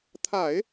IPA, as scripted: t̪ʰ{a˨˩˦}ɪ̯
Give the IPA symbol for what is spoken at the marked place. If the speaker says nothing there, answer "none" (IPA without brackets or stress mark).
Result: a˨˩˦